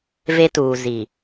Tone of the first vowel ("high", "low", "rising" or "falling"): high